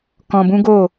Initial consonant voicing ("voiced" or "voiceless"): voiceless